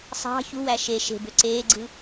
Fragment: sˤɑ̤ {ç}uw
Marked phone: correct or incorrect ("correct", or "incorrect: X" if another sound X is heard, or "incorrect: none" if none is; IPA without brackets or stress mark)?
correct